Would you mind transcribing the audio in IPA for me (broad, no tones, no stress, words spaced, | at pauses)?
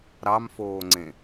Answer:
ɾɑmfoːŋ͡ǀẽ